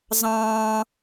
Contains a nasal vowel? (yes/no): yes